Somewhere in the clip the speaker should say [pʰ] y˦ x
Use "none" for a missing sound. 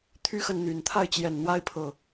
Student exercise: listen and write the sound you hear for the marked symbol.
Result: t̪ʰ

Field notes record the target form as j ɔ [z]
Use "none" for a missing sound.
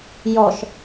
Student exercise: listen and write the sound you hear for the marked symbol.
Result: ʃ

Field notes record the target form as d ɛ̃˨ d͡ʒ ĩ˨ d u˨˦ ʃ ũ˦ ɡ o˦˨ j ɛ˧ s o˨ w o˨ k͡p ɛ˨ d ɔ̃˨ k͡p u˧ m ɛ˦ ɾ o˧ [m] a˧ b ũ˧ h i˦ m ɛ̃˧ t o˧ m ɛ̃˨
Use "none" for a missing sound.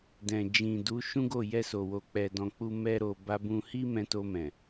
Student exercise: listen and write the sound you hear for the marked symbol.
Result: b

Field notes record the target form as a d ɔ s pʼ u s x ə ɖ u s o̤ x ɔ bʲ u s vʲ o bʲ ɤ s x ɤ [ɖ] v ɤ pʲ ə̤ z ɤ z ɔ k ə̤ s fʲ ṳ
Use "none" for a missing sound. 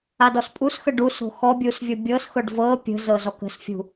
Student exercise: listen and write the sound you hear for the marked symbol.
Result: ɖ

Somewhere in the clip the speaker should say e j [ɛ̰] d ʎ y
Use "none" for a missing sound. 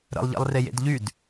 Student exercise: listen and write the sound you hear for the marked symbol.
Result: ḛ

